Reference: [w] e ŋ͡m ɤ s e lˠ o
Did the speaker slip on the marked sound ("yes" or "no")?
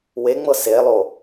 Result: no